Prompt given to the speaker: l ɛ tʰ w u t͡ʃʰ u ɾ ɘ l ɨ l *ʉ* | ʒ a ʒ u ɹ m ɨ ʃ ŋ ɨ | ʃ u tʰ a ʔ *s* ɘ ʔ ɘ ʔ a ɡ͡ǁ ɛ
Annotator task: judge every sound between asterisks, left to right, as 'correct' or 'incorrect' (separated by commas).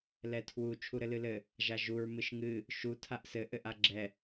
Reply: incorrect, correct